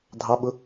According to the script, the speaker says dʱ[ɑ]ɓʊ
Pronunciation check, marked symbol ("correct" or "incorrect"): correct